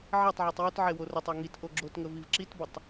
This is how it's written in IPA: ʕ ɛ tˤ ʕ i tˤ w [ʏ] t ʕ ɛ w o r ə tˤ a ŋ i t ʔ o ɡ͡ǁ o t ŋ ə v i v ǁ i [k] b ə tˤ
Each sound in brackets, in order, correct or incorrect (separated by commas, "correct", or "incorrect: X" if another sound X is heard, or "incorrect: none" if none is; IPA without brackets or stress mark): correct, incorrect: t